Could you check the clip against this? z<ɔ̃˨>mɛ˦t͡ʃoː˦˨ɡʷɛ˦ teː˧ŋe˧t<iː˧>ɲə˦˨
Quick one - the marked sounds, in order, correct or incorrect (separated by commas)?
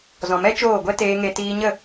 correct, correct